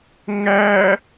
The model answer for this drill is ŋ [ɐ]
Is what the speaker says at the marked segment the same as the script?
no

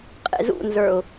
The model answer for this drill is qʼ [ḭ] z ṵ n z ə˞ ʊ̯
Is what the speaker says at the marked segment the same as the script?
no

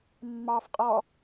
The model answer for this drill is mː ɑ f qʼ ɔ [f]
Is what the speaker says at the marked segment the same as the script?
no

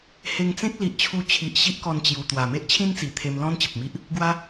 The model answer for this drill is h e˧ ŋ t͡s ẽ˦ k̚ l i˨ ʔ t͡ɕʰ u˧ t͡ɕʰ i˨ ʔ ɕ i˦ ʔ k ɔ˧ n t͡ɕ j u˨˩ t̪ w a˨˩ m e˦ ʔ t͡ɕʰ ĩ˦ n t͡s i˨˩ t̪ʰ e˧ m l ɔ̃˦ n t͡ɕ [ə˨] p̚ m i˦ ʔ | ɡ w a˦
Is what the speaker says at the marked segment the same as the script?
yes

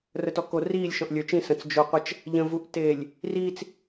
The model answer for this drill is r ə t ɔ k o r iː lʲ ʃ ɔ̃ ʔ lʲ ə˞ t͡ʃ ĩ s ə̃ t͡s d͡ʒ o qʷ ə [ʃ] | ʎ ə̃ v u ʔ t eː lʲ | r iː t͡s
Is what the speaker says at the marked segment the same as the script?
no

